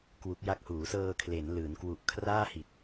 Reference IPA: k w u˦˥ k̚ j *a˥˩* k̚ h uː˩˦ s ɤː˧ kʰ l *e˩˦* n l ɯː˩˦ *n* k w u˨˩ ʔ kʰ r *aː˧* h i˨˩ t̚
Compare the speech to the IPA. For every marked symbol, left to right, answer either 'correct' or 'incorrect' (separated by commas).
correct, correct, correct, incorrect